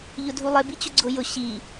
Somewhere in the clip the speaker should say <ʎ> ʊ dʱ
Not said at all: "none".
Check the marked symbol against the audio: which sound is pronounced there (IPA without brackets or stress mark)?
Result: ʎ